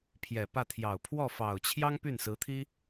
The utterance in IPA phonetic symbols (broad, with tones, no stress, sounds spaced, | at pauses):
pʰ j ɛ˨˩ p ä˥˩ t̪ʰ j ɑ˨˩ ʊ̯ pʰ w ɔ˥˩ f ɑ˨˩ ʊ̯ t͡ɕʰ j ɑ˥ ŋ p y˥˩ n s ɹ̩˧˥ t̪ʰ i˥